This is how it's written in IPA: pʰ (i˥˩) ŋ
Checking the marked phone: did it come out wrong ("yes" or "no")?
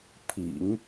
yes